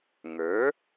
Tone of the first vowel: rising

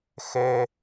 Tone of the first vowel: high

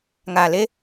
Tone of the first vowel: low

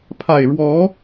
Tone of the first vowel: low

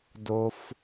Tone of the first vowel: low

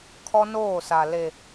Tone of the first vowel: high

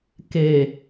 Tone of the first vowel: low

